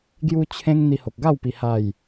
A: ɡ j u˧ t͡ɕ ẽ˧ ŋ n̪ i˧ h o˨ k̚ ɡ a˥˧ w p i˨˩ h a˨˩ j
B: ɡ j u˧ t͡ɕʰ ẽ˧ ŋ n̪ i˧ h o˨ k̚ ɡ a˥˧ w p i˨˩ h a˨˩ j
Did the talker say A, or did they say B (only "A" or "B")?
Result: B